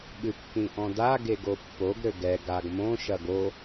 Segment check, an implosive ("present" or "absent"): present